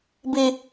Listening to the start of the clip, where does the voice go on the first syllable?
high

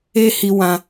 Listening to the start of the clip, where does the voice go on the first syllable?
high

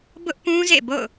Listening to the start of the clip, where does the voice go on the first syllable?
high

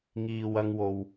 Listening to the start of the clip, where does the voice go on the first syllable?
low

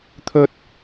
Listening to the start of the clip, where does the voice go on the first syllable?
high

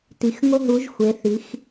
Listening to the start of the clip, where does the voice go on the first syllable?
low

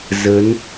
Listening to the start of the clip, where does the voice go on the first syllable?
rising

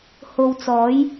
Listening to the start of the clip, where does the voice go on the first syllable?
low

